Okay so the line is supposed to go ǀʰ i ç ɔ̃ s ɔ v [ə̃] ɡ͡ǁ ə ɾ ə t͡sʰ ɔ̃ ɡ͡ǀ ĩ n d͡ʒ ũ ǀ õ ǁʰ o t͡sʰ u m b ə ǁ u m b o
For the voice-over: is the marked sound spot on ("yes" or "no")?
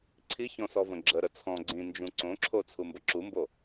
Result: yes